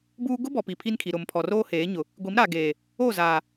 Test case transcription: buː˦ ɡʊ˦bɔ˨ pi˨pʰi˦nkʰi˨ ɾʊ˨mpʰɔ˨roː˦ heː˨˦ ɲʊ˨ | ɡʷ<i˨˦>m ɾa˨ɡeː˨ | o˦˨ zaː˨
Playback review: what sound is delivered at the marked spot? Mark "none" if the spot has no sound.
i˨˦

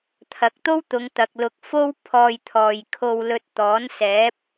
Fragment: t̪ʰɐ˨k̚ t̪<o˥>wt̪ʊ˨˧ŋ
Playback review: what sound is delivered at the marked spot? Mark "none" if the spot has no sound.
o˥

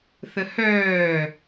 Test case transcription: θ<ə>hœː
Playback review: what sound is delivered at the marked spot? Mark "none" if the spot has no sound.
ə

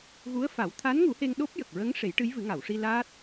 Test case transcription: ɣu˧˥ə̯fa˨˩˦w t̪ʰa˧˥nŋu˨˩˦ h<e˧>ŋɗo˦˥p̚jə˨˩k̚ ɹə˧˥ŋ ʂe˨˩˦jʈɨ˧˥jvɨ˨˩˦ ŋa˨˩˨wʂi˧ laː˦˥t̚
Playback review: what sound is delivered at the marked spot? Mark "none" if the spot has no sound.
e˧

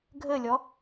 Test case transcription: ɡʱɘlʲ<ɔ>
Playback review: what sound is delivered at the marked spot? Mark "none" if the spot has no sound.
ɔ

